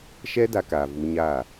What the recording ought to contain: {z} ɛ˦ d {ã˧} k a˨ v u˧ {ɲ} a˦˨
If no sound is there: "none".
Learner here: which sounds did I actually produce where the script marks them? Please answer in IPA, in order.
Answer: ʃ, a˧, ɲ

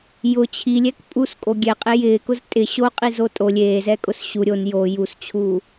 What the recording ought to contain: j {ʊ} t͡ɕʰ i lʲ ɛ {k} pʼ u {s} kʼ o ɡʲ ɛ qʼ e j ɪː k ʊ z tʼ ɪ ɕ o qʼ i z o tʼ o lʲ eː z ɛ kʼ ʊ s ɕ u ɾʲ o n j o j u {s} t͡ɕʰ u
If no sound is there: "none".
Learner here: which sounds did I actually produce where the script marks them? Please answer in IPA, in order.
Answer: ʊ, k, s, s

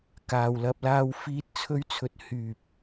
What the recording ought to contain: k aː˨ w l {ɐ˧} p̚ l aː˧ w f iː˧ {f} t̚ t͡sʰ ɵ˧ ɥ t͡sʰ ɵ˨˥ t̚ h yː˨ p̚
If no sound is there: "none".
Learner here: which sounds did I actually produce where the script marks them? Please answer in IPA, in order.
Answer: ɐ˧, none

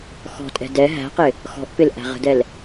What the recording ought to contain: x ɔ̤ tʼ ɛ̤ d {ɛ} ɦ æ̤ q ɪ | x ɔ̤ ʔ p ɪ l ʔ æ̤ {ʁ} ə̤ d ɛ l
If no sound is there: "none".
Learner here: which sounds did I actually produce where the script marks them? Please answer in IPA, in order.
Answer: ɛ, ʁ

